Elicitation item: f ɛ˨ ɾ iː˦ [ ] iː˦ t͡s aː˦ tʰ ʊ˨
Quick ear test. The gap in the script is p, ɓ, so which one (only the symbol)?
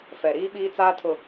ɓ